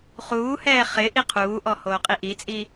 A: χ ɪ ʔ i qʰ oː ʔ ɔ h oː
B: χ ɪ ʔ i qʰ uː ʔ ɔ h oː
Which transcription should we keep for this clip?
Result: B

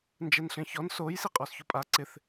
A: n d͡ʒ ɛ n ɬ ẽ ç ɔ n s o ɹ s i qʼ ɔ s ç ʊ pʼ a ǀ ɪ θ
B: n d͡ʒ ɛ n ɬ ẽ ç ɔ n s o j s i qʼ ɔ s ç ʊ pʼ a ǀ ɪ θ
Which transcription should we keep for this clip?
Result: B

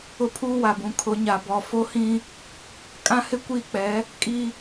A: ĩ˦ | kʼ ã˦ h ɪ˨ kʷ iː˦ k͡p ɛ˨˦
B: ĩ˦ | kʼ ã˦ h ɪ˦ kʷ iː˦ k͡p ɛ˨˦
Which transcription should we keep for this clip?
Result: B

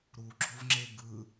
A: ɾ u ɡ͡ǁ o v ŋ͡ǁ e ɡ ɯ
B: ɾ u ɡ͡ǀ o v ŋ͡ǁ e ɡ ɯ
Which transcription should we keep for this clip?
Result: A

